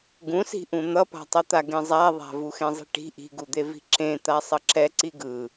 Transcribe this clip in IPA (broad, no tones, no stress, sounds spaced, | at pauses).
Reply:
ɡ ũ s i̤ ʔ ũ n̪ ʌ p a̤ tˤ ʌ t̪ a ɡ ẽ zˤ a ðˤ a̤ v u x ẽ zˤ i̤ ʈ i̤ ʔ i̤ ɡ u d̪ e v i̤ ǁ ẽ t̪ a sˤ ʌ ǁ ɛ ǀ i ɡ ɯ